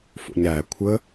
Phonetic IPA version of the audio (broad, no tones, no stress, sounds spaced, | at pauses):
f o̰ ɲ ɾ æ kʷʰ ə